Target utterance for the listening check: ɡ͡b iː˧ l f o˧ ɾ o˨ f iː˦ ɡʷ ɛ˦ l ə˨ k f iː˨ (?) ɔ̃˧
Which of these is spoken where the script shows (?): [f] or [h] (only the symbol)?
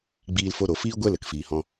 h